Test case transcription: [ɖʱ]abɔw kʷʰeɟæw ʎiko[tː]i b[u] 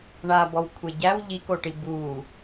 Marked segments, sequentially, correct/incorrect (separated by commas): incorrect, incorrect, correct